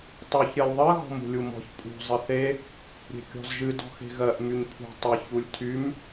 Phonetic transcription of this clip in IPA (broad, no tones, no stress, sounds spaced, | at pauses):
tˤ u ç ɾʲ ɜ lʲ ðˤ ɜ ɣ ɔ̤ m ṳ lʲ u m ɔ̤ ç pʼ ṳ zˤ ɘ θ e | ɾʲ e̤ kʲ ɔ̤ z ʒ ɨ d ɔ̤ x e̤ ɣ ɜ ʔ m y ɲ pʰ ṳ tˤ ɘ ç u lʲ tʰ y m